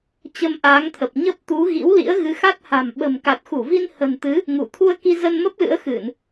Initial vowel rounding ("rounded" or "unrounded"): unrounded